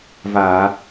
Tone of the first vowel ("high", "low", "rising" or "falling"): low